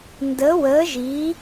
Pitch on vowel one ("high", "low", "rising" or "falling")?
rising